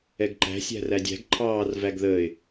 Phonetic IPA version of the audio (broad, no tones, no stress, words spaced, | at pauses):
ɛɡǃæ̤ sʲæ̤rædʲæ̤ɡ ǃʰɑːr væɡðəːɪ̯